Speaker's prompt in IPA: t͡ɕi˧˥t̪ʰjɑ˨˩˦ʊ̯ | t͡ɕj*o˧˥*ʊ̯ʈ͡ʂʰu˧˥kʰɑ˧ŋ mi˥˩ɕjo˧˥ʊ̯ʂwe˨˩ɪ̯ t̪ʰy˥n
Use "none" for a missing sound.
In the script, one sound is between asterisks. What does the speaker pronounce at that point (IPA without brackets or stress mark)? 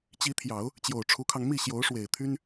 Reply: o˨˩